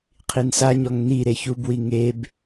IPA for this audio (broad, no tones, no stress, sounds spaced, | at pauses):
qʰ i n s a ɲ ɔ ŋ n i ɾ e ç u b w i ŋ e b